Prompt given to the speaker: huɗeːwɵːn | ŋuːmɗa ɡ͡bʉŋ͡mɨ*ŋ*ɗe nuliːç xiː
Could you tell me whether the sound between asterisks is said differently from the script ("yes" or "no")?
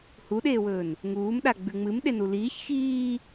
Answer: yes